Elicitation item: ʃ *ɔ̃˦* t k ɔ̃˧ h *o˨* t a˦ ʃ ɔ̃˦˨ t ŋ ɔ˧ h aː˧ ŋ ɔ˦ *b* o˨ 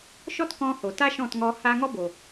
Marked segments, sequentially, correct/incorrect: incorrect, correct, correct

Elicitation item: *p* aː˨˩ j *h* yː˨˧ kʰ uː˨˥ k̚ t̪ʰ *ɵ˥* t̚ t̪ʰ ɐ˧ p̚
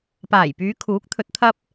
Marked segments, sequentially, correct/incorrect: correct, incorrect, incorrect

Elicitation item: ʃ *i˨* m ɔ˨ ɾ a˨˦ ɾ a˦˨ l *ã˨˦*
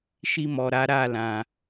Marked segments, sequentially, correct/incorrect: incorrect, incorrect

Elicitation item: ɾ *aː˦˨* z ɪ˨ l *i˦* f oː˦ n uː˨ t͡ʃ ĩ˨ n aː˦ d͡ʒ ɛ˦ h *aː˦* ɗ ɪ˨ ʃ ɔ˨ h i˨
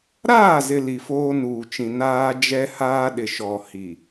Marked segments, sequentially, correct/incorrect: correct, incorrect, correct

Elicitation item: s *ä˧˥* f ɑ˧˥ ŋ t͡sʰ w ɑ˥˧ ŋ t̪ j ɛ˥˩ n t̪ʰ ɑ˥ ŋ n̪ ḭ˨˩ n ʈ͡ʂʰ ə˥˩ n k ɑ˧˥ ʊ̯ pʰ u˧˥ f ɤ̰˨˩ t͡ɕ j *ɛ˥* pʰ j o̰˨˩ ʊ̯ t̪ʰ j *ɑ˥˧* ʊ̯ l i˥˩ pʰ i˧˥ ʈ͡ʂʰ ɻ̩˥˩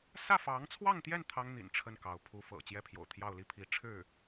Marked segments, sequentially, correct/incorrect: incorrect, incorrect, correct

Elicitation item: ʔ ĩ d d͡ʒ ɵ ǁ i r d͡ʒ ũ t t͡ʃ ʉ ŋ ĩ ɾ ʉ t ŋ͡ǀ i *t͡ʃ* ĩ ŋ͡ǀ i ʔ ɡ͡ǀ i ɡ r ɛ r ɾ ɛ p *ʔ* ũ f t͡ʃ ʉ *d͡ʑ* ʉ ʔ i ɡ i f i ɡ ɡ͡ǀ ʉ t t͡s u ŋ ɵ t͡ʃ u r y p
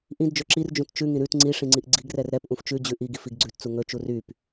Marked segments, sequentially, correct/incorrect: incorrect, correct, correct

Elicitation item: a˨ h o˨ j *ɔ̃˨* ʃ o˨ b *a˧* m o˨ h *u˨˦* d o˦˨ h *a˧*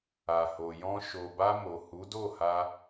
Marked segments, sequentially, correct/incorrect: incorrect, correct, correct, correct

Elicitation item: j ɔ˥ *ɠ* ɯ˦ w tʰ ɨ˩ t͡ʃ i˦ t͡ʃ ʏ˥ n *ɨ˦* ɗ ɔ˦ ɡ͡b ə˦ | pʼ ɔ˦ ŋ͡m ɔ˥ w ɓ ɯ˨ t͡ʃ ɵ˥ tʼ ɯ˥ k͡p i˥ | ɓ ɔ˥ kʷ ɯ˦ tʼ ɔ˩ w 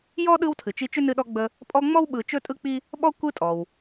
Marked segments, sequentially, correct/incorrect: incorrect, correct

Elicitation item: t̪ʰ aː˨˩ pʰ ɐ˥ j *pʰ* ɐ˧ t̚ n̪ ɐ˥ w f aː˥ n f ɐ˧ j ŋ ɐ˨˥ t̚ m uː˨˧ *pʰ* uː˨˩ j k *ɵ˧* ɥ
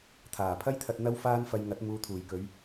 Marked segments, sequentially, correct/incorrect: incorrect, incorrect, incorrect

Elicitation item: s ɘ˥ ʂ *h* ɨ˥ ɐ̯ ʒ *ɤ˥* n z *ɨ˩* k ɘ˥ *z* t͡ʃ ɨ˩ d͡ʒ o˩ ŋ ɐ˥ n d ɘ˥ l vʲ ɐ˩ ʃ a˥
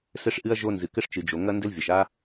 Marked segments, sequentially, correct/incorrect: incorrect, incorrect, correct, incorrect

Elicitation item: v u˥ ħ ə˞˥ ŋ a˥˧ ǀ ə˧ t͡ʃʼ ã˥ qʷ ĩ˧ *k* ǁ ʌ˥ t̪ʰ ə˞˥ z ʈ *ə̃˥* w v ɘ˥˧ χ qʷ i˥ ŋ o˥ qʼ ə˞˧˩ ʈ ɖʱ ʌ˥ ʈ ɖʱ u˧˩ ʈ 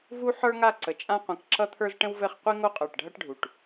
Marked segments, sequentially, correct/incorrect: correct, correct

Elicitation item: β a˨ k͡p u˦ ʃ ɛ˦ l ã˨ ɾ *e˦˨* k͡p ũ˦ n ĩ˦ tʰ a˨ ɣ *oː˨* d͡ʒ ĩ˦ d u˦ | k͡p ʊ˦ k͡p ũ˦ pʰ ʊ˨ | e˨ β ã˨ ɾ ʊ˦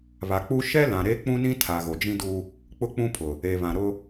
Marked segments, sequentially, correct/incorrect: incorrect, incorrect

